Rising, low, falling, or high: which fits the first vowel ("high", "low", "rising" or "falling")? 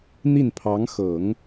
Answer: falling